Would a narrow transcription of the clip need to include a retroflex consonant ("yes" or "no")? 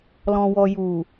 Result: no